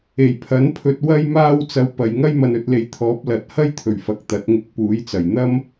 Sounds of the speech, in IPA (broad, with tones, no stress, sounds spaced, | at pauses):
e˨˩ j pʰ ɐ˨˥ n pʰ ɵ˧ t̚ w ɐ˧ j m aː˧ w t͡s ɐ˧ w p ɐ˨ j ŋ ɐ˥ j m ɐ˧ n ɵ˧ t̚ l e˨ j t̪ʰ ɔː˨˥ p̚ l ɐ˨˥ t̚ h ɐ˥ j t̪ʰ ɵ˨˩ ɥ f ɐ˨ k̚ t̪ ɐ˨˥ t̚ ŋ ɪ˧ k̚ p uː˨˥ j t͡s ɐ˨˩ j n̪ ɐ˥ m